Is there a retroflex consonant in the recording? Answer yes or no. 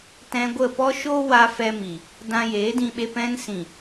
no